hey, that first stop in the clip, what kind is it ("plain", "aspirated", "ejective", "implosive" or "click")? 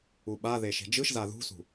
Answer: implosive